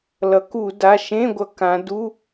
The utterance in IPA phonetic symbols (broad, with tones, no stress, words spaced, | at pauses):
lʌ˩˧ku˧˩˧ da˩˧˩ʃẽ˧˥˧ɡʷʌ˧˩˧ kã˩˧ du˧˥˧